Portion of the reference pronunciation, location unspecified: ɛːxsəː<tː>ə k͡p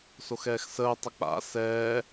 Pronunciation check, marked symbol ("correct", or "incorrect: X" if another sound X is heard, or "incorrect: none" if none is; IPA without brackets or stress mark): incorrect: tˤ